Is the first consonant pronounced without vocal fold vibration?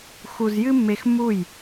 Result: yes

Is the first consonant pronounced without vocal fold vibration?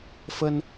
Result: yes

